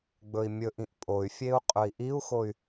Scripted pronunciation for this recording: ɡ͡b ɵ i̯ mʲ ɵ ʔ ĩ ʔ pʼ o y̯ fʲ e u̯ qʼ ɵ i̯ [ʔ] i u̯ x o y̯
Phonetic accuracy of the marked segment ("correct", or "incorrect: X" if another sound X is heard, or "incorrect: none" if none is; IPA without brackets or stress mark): correct